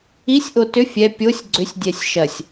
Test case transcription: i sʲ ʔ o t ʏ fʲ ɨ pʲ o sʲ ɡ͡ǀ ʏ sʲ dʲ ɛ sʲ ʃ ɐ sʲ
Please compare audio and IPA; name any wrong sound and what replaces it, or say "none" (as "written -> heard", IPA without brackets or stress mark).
ɨ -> ɛ